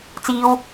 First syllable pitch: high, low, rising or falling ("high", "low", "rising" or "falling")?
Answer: high